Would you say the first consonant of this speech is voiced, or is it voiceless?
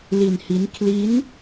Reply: voiced